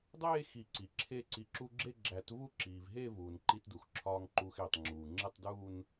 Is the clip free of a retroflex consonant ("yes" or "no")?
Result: yes